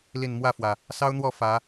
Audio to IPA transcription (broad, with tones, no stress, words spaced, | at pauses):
li˨˩n mwä˥˨fwä˩ | sɑ˦ʊ̯n̪wɔ˥˨ fä˨˦